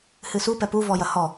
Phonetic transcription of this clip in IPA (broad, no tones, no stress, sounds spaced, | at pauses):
h ɨ s u p ɛ p u v ɔ j ɐ h ɔ